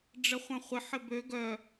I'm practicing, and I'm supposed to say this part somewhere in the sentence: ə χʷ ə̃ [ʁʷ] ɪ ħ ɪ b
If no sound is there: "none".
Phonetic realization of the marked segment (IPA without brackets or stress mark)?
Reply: χʷ